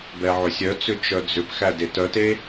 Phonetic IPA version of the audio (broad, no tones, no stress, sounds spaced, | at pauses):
b ɛ ʕ ʏ sʲ œ t͡s ʏ t͡ʃ œ d͡z ʏ p x æ d e t œ t e